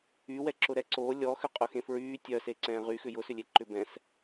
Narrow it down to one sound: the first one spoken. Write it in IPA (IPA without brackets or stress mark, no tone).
y